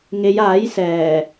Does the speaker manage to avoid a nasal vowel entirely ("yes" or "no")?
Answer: yes